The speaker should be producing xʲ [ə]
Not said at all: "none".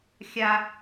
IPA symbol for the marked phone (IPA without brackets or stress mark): a